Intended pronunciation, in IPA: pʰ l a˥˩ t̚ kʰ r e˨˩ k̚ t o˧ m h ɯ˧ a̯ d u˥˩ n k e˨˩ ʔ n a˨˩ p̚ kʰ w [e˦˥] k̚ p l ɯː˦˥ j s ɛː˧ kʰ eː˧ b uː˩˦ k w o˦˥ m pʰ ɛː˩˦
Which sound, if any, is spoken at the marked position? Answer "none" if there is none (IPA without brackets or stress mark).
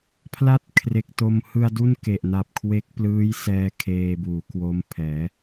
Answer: e˦˥